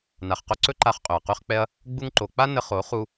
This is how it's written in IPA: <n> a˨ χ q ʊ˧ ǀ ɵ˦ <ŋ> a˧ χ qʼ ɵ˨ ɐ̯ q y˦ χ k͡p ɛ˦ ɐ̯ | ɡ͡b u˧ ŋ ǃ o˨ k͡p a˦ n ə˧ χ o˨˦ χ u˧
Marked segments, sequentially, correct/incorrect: correct, incorrect: ǃ

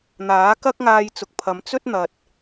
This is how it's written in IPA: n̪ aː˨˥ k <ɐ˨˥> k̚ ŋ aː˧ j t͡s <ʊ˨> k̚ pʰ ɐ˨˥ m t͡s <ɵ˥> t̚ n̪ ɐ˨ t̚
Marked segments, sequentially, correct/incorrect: incorrect: ɐ˥, correct, correct

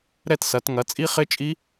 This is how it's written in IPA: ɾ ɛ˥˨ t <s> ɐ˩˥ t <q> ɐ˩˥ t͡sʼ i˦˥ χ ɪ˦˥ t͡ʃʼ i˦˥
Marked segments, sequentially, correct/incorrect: correct, incorrect: ŋ

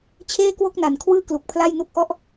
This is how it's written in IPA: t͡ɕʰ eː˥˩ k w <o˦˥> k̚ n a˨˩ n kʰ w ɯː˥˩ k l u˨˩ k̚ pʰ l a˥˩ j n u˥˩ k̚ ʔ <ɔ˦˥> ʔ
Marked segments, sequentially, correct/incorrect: incorrect: o˥˩, incorrect: ɔ˥˩

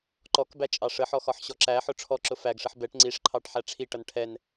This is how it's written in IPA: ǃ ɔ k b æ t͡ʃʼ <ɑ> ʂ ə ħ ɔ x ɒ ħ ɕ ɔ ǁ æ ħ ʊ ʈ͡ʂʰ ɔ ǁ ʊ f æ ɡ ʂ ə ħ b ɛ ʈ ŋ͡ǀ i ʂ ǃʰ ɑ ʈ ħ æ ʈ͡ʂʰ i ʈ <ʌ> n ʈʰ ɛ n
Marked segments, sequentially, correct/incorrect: correct, correct

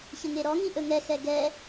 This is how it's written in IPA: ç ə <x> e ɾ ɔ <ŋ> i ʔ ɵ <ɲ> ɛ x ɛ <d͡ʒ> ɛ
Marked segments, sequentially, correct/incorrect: incorrect: ŋ, correct, incorrect: ŋ, incorrect: ɡ

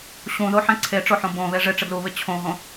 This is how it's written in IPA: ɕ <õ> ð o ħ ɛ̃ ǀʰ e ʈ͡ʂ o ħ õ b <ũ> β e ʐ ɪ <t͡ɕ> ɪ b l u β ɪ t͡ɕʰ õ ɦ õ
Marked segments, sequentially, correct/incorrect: incorrect: ũ, incorrect: õ, incorrect: ʈ͡ʂ

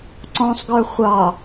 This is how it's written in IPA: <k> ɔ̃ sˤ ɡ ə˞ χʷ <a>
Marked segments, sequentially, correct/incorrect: incorrect: ǀ, incorrect: ɑ

